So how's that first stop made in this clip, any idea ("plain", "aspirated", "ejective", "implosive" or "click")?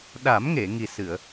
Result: implosive